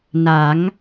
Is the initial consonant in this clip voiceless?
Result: no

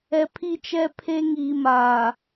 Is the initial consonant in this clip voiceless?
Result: yes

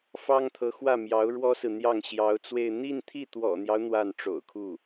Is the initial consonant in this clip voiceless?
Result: yes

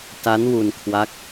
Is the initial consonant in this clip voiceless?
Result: yes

